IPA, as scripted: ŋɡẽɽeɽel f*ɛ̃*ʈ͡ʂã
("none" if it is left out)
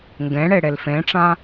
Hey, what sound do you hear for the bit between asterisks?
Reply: ẽ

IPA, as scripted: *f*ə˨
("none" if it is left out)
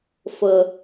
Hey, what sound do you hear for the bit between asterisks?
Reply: f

